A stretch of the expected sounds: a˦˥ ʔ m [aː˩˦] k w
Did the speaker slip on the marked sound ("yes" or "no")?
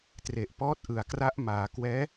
no